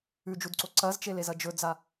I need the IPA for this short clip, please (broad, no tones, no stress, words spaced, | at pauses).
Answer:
ʉd͡ʒudǀo ǀɐzt͡ʃelezɐ d͡ʒɵd͡za